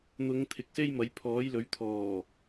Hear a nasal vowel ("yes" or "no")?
no